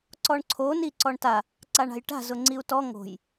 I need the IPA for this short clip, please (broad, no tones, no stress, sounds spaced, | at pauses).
ǀ ɔ ɳ ǀʰ o n i ǀ ɔ ɳ t a | ǀ a ɳ a̤ j ʈ a̤ z ʊ ŋ͡ǀ i u̯ t ɔ ŋ o̤ j